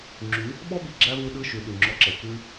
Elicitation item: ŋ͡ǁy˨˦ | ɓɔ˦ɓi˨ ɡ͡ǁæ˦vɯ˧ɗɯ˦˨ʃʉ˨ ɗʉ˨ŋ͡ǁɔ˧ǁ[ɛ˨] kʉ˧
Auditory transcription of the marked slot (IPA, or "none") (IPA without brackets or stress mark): ɛ˨